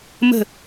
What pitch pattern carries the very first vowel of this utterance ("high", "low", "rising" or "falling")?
falling